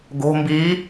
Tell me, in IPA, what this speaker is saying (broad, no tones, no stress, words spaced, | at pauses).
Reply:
ɡo̤ mbi